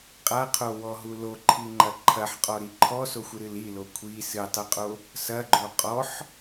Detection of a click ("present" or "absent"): present